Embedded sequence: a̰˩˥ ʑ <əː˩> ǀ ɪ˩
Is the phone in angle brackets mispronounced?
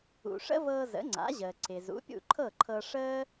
no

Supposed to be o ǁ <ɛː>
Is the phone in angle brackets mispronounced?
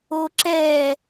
no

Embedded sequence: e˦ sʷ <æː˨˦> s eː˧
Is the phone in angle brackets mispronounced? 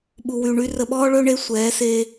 yes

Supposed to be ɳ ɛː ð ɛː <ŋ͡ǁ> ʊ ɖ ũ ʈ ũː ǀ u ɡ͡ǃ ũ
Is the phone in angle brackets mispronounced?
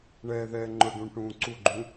yes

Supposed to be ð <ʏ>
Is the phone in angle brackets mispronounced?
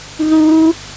yes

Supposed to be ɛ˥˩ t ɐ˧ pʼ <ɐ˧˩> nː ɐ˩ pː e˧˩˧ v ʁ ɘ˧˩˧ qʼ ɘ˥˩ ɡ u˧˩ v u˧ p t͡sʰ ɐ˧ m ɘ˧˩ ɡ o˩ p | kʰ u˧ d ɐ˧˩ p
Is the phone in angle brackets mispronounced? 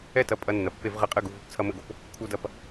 yes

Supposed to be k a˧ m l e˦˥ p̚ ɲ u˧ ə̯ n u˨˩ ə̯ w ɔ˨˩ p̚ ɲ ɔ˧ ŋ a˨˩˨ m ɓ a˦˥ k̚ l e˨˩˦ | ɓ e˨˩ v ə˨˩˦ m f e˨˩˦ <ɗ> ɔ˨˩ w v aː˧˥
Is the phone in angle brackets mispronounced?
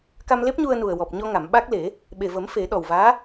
no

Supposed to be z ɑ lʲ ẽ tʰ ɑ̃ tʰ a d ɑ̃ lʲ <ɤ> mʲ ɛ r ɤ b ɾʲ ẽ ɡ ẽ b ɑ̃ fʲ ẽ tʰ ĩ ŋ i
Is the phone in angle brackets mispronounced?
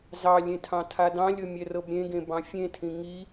no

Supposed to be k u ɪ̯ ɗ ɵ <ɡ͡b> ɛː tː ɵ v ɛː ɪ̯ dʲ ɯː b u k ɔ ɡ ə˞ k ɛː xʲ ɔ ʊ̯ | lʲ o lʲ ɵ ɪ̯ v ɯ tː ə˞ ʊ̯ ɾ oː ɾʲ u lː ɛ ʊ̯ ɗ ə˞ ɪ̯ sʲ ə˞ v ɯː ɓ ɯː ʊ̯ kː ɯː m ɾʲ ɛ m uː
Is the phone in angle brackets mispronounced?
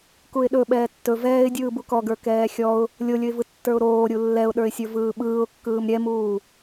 yes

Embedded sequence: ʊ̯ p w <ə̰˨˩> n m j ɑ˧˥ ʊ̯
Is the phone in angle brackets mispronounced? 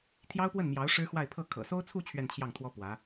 yes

